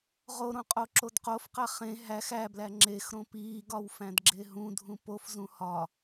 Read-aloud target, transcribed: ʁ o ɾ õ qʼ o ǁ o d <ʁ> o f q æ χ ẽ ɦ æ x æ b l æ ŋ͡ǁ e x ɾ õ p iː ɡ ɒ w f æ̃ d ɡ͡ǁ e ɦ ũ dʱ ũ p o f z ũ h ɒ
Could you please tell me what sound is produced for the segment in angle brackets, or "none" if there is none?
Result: q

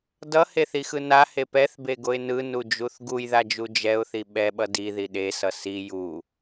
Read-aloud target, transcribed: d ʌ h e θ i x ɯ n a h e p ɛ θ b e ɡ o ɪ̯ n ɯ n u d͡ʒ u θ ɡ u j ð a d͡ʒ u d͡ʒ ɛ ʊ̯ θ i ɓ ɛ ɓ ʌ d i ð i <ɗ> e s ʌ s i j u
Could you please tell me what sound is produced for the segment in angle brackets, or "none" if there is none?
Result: ɗ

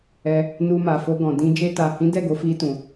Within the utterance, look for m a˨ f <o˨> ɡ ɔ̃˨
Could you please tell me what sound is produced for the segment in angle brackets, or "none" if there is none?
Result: o˧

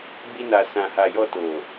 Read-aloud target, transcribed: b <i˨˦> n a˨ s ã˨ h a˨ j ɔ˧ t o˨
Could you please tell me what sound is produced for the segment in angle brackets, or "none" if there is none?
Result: i˧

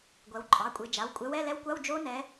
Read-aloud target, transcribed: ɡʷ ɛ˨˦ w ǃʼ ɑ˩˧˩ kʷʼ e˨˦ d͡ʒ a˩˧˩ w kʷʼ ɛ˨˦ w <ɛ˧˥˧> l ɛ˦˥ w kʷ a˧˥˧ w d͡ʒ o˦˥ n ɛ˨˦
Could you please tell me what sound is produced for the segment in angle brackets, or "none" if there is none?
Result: ɛ˧˥˧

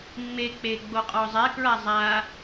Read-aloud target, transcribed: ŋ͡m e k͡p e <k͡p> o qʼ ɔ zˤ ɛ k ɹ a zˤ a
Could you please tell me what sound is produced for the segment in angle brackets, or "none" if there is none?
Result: ɡ͡b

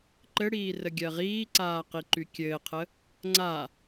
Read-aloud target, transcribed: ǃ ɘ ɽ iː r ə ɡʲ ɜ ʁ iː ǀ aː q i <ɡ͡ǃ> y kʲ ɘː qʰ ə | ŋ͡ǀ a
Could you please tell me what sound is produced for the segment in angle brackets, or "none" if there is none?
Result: ǃ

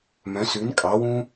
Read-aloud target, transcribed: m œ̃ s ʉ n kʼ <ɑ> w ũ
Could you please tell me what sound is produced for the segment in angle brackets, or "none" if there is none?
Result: ɑ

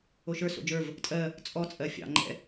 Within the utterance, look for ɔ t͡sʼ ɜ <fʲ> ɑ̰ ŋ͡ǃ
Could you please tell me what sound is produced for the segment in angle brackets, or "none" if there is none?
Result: fʲ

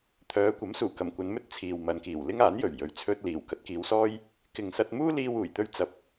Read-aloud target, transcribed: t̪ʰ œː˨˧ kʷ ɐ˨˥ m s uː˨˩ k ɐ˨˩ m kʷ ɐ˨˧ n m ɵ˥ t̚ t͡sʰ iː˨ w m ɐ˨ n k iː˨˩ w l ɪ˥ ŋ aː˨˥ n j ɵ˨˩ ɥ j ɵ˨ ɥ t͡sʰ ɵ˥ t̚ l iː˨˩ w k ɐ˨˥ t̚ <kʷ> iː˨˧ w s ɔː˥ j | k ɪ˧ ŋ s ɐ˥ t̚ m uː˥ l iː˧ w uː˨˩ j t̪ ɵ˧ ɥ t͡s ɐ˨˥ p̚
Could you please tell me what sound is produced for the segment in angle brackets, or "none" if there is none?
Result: k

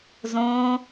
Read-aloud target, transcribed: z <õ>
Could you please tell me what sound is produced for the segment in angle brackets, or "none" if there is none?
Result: õ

